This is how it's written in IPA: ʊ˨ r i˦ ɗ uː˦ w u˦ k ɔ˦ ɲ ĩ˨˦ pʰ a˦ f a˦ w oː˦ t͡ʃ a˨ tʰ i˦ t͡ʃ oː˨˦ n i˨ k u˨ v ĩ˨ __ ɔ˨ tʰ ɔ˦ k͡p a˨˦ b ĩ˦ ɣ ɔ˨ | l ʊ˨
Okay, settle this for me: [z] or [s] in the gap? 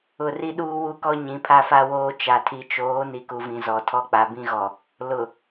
z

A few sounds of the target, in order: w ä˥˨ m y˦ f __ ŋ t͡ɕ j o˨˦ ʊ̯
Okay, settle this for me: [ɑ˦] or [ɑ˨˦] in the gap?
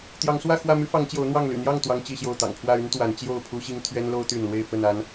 ɑ˨˦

